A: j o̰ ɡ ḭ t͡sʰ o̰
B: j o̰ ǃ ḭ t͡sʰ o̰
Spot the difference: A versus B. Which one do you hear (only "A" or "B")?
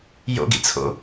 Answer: A